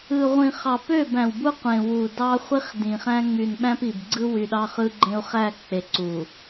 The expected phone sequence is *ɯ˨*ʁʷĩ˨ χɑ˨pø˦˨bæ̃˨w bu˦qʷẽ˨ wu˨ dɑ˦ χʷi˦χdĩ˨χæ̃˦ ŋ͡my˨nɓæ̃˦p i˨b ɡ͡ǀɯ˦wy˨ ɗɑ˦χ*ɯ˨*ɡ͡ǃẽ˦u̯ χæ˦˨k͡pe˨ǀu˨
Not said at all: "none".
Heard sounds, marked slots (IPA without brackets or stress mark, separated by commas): ɯ˨, ɯ˦